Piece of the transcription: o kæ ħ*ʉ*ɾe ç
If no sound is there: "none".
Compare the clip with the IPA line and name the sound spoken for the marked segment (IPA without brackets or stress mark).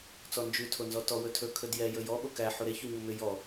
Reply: u